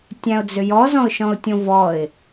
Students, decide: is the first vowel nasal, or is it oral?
nasal